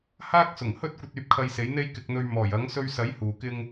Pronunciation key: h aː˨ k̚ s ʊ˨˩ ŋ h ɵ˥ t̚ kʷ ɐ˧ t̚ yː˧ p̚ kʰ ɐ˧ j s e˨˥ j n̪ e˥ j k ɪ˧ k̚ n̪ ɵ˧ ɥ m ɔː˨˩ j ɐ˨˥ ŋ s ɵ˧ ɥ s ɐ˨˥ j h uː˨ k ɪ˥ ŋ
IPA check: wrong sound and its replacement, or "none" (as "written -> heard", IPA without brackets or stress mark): aː˨ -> aː˥